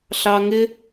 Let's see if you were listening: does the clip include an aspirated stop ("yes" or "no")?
no